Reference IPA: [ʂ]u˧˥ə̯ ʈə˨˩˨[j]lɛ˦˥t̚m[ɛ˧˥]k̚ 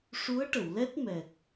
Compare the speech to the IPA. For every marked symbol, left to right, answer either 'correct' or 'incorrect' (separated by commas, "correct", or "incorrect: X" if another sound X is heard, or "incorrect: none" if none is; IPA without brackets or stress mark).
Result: correct, incorrect: w, incorrect: ɛ˨˩